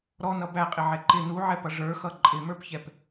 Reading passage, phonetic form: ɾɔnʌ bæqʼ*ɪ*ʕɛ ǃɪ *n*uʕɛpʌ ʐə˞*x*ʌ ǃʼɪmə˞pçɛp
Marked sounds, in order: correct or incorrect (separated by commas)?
correct, correct, correct